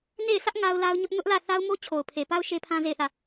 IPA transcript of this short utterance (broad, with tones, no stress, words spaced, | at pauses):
ne˦˨ɪ̯sä˦ʔ ŋa˦ʊ̯ la˦ʊ̯ɲʊ˦ʔ nʊ˦ʔlä˦˨ θa˦ʊ̯mo˦ t͡ɕʰo˨ʊ̯pʰe˨pa˦ʊ̯ ʃe˦pʰã˦ ze˦˨ɪ̯θä˦˨